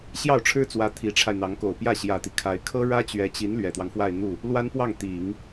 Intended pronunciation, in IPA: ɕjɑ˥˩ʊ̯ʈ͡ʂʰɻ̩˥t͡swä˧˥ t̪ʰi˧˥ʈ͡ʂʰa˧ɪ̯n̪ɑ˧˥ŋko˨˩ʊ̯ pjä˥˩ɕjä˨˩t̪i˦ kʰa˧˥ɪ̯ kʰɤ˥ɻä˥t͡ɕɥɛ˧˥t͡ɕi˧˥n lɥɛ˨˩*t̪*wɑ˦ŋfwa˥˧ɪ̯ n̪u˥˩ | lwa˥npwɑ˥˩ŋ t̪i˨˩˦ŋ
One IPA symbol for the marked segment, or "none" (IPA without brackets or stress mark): t̪